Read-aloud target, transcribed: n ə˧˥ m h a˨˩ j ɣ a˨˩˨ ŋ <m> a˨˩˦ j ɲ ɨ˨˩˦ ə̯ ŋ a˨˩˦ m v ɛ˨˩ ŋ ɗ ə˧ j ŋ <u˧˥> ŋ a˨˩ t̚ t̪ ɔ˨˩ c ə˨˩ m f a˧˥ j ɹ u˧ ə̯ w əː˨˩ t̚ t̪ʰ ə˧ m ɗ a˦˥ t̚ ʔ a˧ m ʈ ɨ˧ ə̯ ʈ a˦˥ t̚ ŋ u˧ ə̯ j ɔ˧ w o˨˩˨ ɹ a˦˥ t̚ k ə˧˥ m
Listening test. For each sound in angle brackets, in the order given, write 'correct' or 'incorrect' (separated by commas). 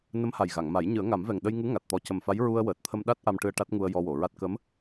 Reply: correct, correct